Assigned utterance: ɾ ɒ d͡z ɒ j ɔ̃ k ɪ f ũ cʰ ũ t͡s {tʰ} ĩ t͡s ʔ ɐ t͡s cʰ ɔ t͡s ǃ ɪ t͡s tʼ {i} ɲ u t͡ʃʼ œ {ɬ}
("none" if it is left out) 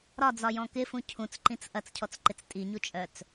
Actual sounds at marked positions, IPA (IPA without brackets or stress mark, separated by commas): ǃ, i, t͡s